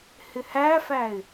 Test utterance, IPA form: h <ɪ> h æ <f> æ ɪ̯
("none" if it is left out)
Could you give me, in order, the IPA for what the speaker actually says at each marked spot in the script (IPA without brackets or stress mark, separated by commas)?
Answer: ɪ, f